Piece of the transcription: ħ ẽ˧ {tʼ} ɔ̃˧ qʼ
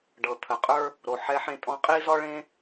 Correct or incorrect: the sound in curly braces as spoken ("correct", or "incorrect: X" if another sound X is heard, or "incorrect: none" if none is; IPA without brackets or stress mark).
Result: correct